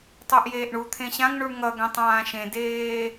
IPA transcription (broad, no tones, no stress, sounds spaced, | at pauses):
tˤ o ʔ j eː ʔ ɳ u t̪ʰ ẽ ɕ ã ŋ ɳ u ɳ ŋ ʌ ɡ ɛ̃ tˤ ãː ʃ ẽ d eː